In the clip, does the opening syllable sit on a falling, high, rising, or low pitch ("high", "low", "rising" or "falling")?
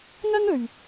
high